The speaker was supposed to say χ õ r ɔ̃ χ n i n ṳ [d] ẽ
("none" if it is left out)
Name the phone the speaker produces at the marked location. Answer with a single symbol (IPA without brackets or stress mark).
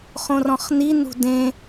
d